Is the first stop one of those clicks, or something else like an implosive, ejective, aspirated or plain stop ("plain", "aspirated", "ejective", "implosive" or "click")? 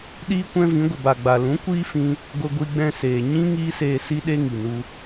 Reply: implosive